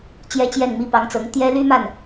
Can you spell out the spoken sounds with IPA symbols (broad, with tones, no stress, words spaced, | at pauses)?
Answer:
t͡ɕjɛ˥t͡ɕjɛ˥˩nmi˥ pɑ˧˥ŋt͡sɤ˧˥ŋ t̪jɛ˥ly˥ma˥˩n